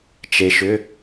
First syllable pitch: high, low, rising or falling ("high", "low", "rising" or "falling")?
low